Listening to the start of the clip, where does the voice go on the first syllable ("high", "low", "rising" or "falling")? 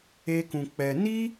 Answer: high